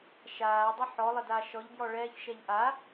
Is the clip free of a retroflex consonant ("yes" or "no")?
no